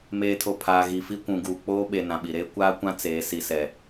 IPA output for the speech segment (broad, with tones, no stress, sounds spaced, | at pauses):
m eː˨ tʰ o˨ pʰ aː˨ ɣ i˨ f i˦ kʷ ũ˨ ɡ uː˨ k͡p oː˦ ɓ e˨ n ã˨ ɓ i˨ ɾ eː˦ kʷ aː˦ kʷ ã˦ t͡s eː˨˦ s i˨ s ɛ˨